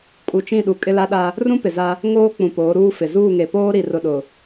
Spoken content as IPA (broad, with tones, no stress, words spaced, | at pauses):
kʼu˨t͡ʃĩ˦˨ɗu˨ kʼɪ˦la˦ɗa˦ | rũ˦pɪ˨za˦ | ŋoː˦ k͡pũ˨poː˨˦ɾuː˦fɪ˨ zuː˦˨ŋe˨ poː˦ɾi˨rʊ˨ɗʊ˨